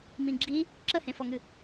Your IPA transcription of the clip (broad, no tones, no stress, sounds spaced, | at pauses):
m ĩ ɡ͡ǁ i | ǁ ə h ẽ f ɔ ŋ ɨ